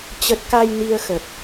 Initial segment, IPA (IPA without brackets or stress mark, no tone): t͡ɕ